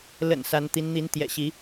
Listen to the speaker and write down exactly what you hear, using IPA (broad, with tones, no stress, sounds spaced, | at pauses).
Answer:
l ə̰˨˩ n s a˧˥ n t̪ i˧˥ n n̪ i˧˥ n t̪ j ɛ̰˨˩ ɕ i˧˥